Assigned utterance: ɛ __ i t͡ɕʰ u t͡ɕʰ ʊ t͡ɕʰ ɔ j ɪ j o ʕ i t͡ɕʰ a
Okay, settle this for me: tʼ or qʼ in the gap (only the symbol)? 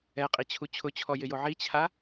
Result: qʼ